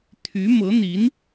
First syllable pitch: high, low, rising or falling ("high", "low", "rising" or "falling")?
rising